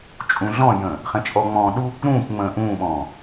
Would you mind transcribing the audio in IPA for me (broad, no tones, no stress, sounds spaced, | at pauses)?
t͡ʃʼ ũ ɮ ɔ̃ j ə̃ː | χ ɛ̃ t͡ʃʼ ɔ ŋ͡m ɔ̃ː ɗ u | ɾ ũː k ŋ͡m ə̃ː ʔ ũː ɓ ɔ̃ː